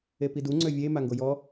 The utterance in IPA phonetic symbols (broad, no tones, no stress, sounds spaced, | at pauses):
e p i d u ŋ͡ǀ ø vʲ e m a ŋ ɡ o j ɔ